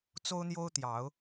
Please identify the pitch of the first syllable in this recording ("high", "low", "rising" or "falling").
high